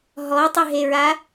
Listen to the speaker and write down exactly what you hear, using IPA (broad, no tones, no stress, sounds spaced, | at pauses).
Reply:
ɦ ɔ tˤ ʏ ɦ e ɹ a